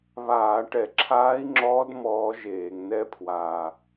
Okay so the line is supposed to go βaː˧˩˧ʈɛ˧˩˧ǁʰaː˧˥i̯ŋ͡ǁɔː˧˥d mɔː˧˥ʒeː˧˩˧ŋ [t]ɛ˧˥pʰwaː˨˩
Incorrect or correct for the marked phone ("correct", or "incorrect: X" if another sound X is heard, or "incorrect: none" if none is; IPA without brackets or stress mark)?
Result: incorrect: n